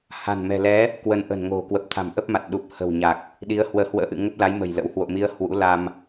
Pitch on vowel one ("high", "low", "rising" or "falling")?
low